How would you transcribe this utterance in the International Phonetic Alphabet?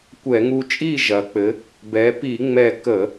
kʷɛ˧˩˧ŋu˧t͡ʃʼi˥˨ ʒɐ˩˧k͡pɘ˩˧ | bɛ˩˧pi˧˩˧ŋ͡mɛ˧˩ kə˧˩˧

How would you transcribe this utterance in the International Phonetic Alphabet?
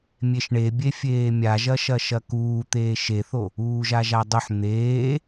mʲeʃɳebʲe fʲeːmʲaʒɐʃɐ ʃɐkuː t̪eːʃeθo | uːʒaʒadˤʊħ n̪eː

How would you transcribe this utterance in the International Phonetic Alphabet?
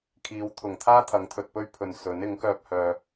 kʰiː˨˧w t̪ʰʊ˨˩ŋt̪ʰaː˥ t̪ʰɐ˨˥ŋt̪ʰɵ˨t̚pɵ˥ɥ pʰɵ˨nsɵ˨˥n ɪ˨˥ŋ kœː˧p̚hœː˨

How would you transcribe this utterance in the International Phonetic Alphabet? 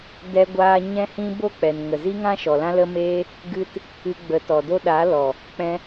dɛ˦ɡʷaː˦ ɲɛ̃˦hĩ˦ bo˦k͡pɛ˨n ŋə˨zi˦ŋã˦ ʃɔ˨lã˦lə˦meː˦ | ɡɨ˦t | ɨ˧ɡ͡bə˨˦tɔ˨do˦ ɗa˨˦lɔ˨ | k͡pɛ̃˧

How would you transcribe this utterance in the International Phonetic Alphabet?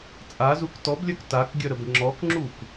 t͡sʼazuk tɔblʲœk takɡʲœɾəb ŋ͡ǁɔkŋ͡ǁuk

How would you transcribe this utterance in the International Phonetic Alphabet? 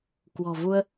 kwɔ̤˨˩vu˧ə̯

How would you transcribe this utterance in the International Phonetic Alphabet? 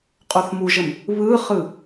qʼoθmuʒəm | βɯχɯ

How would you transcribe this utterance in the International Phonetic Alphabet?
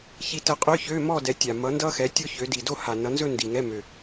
çi˧tə˧qʼø˧˥˧ çø˧˥˧mɔ˥˧ dɛ˨˥tʲa˨˩ mʌ˨˥ndʌ˥xɛ˨˥ tʲo˥çø˨˥ di˨˩do˥˧ha˨˩ nʌ˨˥nzɵ˥˧ ndi˨˩ŋɛ˧˥˧ mø˨˩

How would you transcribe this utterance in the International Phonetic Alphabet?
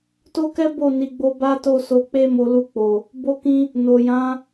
to˦kɛ˦bo˦˨ ni˨˦ɡ͡bo˦ ba˦to˦˨so˧ k͡pe˦mo˧ lu˧k͡po˨ | bo˦kĩ˦ | no˨jã˨˦

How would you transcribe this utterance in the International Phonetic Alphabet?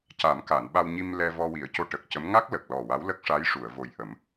ca˨˩˦mka˨˩˨nɓa˧wɲi˧m lɛ˧vɔ˧wi˨˩˦ə̯co˧ ʈə˨˩k̚cə˧˥m ŋa˦˥k̚ lə˨˩k̚lɔ˨˩wa˧˥w lə˦˥k̚ʂa˧˥jʂu˨˩˨ə̯ vo˨˩jʔə˨˩˦m

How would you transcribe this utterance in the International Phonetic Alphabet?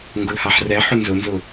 ŋɡʊlhaħrɛ ħʊnzʊnzʊ

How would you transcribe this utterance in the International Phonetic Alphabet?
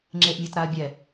ŋ͡ǁeʔmʲatɾaɐ̯bʲɛ

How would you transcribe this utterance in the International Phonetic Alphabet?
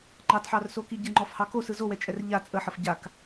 ŋ͡ǃɑtħɑrsoki ɟəŋ͡ǃɔfhɑ kosɯ zowɛt͡ʃʼɛr ʎa t͡sʼəħəf ɟak

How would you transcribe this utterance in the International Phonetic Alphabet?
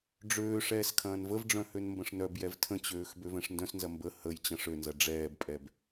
ɖ͡ʐøː ʂɛːskʰɐ̃ːnvəvɖ͡ʐœ̃ hønmbə̃ʂnœbjɛv tʰə̃t͡ɕøːx bøvɛ̃ʂndœ̃snzɐ mbə həj t͡ɕɐ̃ʂønzɐ ɖ͡ʐɛːbpʼɛb

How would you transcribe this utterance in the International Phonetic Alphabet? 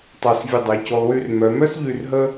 tˤa˧˩svʲə˧˩dˤɛ˩˧ co˧lˠwy˥˧r mœ˩˧mœ˥sʎy˧˩r ɦə˥

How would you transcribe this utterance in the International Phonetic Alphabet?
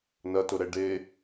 nɐtʊɾɛ ɖe

